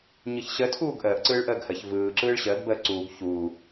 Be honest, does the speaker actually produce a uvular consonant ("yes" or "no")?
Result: no